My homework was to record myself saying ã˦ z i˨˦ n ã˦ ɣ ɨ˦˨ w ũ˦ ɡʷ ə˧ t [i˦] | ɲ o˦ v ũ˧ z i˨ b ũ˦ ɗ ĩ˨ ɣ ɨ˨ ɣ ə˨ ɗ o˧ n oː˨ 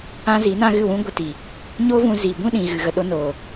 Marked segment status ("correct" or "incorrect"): incorrect